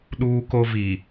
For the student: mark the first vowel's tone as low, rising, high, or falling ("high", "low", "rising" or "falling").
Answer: high